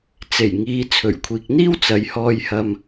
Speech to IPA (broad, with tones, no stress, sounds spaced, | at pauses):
t͡s e˨˩ j ŋ iː˨˧ t͡sʰ ɵ˨˩ ɥ kʷʰ iː˨ k̚ n̪ iː˥ w t͡s ɐ˨˧ j h ɔː˧ j h ɐ˧ m